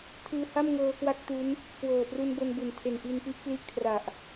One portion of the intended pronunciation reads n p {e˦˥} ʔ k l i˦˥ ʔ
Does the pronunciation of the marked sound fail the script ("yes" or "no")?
yes